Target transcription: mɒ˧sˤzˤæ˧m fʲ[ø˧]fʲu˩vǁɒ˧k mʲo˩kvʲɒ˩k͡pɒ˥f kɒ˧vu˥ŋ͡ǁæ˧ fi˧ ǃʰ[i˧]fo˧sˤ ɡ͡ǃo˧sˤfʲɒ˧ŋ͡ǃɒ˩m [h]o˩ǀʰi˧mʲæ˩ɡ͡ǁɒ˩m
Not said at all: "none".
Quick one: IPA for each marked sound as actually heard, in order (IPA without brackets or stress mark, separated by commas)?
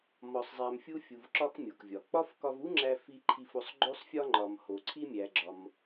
u˧, i˧, h